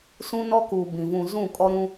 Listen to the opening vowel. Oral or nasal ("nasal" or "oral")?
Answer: nasal